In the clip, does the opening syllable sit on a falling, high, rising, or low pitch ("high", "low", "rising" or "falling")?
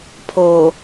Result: low